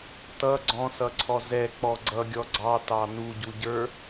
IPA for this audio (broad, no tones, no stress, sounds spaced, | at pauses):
t ʌ ɡ͡ǀ ɔ̃ s ʌ ǀʰ ɔ z ɛ k͡p ɔ ɡ͡ǀ ʌ ɡʲ ɔ ɡ͡ǀ ɑ t ɑ n u ɟ u ɟ ə˞